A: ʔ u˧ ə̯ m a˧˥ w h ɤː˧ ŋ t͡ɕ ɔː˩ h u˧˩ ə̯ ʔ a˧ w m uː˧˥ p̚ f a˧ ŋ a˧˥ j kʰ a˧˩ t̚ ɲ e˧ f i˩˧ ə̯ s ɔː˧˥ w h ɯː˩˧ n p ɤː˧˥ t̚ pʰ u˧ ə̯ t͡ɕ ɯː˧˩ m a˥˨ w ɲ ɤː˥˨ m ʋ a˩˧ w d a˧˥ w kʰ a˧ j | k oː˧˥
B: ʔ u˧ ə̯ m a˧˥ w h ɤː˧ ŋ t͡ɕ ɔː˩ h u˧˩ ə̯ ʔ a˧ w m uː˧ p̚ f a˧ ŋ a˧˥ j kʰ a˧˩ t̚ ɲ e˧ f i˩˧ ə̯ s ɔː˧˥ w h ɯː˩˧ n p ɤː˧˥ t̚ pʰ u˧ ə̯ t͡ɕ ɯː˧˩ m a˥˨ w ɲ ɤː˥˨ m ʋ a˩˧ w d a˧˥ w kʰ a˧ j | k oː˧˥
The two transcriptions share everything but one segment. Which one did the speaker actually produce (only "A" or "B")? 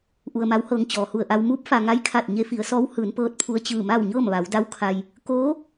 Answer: A